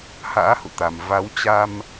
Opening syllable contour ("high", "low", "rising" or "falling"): rising